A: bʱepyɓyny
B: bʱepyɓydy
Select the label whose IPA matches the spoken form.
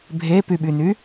A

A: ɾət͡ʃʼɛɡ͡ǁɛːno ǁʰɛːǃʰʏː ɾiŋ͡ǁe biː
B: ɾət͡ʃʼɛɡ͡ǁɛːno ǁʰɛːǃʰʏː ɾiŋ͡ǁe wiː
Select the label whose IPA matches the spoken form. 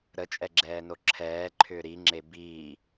A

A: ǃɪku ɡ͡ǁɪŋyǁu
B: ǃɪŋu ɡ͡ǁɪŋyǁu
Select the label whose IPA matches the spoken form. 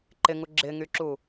B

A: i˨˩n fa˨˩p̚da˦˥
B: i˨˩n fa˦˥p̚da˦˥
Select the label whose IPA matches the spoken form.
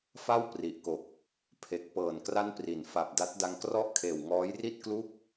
A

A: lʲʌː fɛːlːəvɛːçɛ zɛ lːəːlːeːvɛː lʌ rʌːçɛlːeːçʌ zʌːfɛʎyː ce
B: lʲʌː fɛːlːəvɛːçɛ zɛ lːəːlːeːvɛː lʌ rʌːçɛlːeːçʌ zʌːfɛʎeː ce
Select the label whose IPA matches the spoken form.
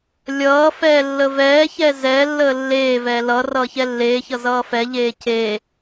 B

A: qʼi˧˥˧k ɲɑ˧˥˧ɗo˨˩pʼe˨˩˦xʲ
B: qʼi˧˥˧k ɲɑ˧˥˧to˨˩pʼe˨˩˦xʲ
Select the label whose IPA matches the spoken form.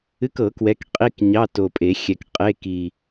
B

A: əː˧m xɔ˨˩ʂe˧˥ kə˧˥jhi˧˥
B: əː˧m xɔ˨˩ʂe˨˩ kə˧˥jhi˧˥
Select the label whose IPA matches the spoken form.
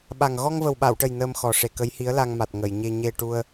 B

